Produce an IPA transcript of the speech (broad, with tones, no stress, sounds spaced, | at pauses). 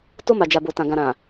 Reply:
t o˧ m a˨ d͡ʒ a˨ b o˨ t ã˨ ɡ ã˨ ɾ ã˨